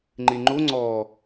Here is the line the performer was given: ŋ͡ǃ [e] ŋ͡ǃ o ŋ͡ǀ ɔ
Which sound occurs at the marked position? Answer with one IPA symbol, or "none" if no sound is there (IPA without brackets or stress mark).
e